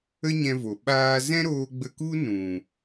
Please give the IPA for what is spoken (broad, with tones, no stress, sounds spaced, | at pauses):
ə˦ ɲ ɛ̃˧ v o˨ ɓ aː˧ z ɛ̃˦ ɾ oː˧ ɡ͡b ə˧ k u˦ n ũ˨